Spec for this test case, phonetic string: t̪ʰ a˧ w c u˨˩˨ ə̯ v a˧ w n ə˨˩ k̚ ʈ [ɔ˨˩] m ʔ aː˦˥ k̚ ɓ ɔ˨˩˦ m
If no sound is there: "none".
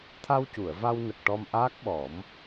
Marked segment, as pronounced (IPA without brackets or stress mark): ɔ˧